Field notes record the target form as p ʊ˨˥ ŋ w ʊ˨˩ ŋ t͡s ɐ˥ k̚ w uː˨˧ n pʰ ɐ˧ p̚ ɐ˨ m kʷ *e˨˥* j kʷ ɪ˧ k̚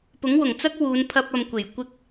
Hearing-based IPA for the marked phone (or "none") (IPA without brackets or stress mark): e˨˩